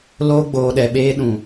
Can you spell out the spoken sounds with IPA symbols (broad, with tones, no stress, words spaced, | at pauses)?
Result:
loː˧ɡ͡boː˨ɗɛ˨ɓeː˧ ɗũ˨